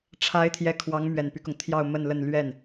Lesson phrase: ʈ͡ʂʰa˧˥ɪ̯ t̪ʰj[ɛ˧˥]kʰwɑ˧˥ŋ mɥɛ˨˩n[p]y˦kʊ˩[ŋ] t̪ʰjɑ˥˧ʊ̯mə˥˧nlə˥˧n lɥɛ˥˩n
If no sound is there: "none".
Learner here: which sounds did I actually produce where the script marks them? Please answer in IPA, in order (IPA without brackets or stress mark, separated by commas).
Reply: ɛ˧˥, p, ŋ